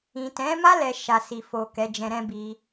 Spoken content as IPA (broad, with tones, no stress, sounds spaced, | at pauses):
ĩ˨ t ɛ̃˨˦ m a˦ l ɛ˧ ʃ a˨ s i˨ f o˨ k ɛ˨˦ d͡ʒ ɛ̃˧ ɾ ɛ̃˦ b i˧